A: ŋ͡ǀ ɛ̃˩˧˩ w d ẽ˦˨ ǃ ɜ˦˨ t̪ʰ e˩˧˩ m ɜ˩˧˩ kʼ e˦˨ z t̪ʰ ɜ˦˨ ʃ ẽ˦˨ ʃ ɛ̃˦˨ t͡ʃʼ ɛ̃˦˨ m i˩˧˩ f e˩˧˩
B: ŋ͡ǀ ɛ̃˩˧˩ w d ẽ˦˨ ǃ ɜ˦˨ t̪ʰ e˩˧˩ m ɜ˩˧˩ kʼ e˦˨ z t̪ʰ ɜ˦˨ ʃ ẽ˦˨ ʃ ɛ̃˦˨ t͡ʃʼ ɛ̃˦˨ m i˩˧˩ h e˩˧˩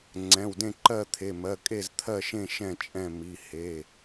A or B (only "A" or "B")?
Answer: B